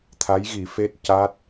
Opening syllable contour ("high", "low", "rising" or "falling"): rising